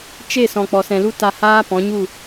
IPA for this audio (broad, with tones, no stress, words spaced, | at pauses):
t͡ʃe˦˨ sɔ̃˨k͡pɔ˨sɛ̃˨lu˦ ta˧haː˦ pɔ̃˨˦ɲu˦˨